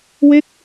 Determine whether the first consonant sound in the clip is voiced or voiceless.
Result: voiced